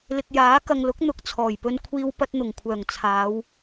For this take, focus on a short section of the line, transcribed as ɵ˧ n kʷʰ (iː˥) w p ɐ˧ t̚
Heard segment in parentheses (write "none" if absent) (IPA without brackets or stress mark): iː˧